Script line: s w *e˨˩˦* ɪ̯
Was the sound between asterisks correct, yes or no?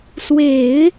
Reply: yes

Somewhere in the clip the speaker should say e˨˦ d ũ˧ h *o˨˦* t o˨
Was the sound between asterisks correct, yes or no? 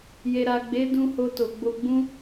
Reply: no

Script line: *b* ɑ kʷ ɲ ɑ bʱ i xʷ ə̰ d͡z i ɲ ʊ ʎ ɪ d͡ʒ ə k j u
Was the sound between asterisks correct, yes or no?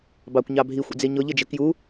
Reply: yes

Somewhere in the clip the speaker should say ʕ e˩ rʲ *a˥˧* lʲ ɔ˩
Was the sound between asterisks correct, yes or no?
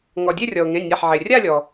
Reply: yes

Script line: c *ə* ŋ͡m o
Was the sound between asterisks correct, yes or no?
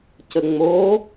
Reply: yes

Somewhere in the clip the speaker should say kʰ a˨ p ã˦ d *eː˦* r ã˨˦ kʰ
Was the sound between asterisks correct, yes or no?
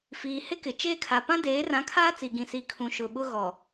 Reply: no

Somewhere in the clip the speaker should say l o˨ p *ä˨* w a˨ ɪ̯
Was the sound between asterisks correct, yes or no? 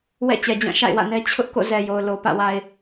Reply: no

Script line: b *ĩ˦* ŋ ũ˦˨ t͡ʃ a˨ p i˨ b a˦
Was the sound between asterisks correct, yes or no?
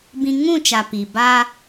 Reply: yes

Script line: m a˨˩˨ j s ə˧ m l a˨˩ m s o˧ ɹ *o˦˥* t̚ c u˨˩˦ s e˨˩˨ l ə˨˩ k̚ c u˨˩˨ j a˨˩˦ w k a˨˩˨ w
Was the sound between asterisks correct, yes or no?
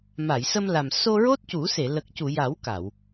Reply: yes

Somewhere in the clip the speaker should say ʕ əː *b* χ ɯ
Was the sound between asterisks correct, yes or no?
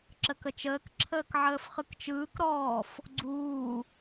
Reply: no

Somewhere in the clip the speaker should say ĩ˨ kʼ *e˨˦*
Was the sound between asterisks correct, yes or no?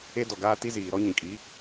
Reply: no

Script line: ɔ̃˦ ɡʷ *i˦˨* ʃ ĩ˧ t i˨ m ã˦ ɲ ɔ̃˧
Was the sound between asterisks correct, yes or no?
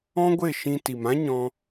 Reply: no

